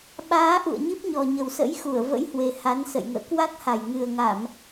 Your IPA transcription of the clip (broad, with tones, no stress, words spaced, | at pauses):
ɓaː˨˦ ʔṵ˧˨ə̯ɲi˦˥p̚ɲɔ˨˩ ɲə˨˩wsə̰˧˥j xu˧˩ə̯və̰˧˥jhwe˨˩ ha˨˦nsə̰˧˨jŋə̰ː˧˨ kwa˦˥k̚ha˨˩j ŋɨ˨˩ə̯ŋa˧˩˨m